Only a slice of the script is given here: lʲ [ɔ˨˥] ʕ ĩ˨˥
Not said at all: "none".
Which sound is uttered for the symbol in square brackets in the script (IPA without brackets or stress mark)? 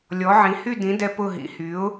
ɔ˨˥